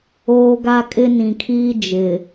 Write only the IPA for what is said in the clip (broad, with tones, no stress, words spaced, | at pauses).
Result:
oː˦ɡa˦ kʼɪ˦nĩ˨kʰiː˦ d͡ʒɪ˨